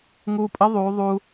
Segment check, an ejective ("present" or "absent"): present